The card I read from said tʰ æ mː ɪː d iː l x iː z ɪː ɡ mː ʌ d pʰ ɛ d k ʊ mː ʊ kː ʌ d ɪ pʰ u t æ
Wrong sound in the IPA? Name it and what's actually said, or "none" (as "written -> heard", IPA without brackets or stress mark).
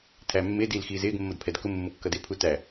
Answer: none